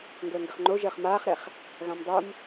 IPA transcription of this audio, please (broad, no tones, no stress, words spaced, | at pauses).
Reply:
ŋɡəːŋɡəχŋ͡ǃo ʒəːχmaːχɾɛχ | ɣãmdˤom